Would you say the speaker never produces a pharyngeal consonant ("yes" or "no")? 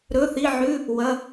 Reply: no